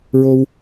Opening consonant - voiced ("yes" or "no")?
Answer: yes